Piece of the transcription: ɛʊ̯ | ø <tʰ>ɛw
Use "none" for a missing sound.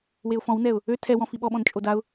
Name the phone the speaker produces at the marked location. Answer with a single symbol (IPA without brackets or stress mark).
tʰ